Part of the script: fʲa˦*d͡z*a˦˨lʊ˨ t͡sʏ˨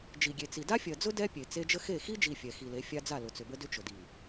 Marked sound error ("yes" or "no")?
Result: no